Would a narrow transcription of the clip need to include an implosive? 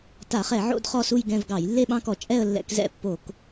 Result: yes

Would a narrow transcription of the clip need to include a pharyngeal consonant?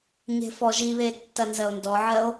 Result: yes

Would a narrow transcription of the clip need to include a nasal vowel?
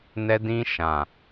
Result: yes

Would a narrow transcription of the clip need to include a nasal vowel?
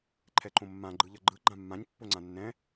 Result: yes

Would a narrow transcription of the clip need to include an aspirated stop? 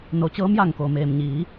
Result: no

